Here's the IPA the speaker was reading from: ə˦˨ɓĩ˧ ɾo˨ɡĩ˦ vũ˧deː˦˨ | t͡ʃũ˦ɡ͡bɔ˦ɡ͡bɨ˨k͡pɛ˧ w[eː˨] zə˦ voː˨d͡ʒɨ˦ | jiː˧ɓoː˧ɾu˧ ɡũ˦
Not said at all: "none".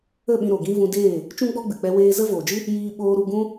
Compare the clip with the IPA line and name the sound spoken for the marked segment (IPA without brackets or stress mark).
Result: eː˧